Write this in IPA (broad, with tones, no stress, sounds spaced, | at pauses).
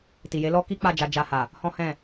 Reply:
t i˨ j e˨˦ l ɔ˦ k i˦ k͡p a˦˨ d͡ʒ a˧ d͡ʒ a˧ h a˨ | h ɔ̃˦ h ɛ̃˦˨